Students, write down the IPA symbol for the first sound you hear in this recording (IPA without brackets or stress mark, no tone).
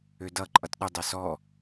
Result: ø